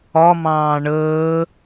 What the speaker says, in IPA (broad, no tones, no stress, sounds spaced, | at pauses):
ɒ m ɑ̃ː ɳ əː